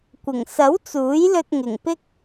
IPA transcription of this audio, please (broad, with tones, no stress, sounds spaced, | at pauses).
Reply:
kʷ ɪ˨˩ ŋ s ɐ˨˥ w t͡s uː˨˥ j l ɵ˧ t̚ ŋ ɪ˨˩ ŋ p ɪ˥ k̚